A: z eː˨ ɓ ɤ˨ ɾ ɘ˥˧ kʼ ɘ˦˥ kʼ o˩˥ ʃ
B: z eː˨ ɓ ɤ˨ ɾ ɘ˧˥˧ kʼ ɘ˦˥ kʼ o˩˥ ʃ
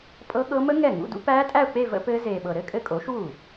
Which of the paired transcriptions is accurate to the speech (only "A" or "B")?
B